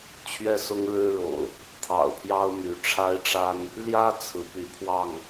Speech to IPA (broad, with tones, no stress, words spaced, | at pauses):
t͡ɕʰɥɛ˥˨sʊ˦ŋɻɻ̩˦ɻo̰˨˩ʊ̯ | t̪ʰɑ̰˨˩ʊ̯pʰjɑ˦ʊ̯my˨˦ ʈ͡ʂʰa˦ɪ̯ʈ͡ʂa˦n | ljä˦ t͡sʰɹ̩˨˦py˨˦pʰwɑ˥˨ŋ